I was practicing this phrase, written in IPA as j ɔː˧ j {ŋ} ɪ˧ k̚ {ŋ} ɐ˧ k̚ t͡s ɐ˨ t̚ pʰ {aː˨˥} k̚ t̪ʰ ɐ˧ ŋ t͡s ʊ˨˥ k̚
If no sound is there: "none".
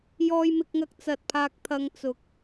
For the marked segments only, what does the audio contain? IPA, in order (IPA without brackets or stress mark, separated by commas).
m, ŋ, aː˧